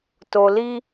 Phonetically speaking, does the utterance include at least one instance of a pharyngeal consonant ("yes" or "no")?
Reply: no